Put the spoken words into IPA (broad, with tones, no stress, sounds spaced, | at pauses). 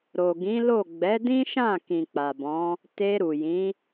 ɾ o˨ ɡ ĩ˨˦ l o˦˨ ɡ͡b ɛ˨˦ d ĩ˦ ʃ ã˦˨ k ĩ˨ k͡p a˨ b ɔ̃˨˦ | t e˧ ɾ u˨ j ĩ˨˦